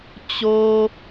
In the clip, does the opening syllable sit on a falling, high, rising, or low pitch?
high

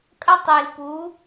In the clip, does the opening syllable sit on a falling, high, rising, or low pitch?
high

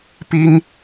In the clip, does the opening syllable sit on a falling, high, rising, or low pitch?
high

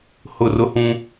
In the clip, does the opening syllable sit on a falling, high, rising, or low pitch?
falling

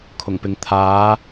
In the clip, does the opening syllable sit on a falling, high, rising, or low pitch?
low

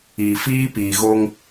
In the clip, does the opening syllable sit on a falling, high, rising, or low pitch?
low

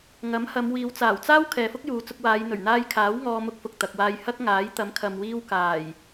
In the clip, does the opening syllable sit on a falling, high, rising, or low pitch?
rising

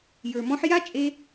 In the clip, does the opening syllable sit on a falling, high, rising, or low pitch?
low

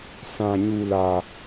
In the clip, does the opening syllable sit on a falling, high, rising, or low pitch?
low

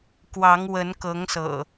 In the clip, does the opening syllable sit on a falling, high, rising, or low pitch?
rising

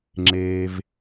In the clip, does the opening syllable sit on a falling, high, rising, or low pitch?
low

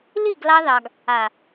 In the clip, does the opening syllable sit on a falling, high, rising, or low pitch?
falling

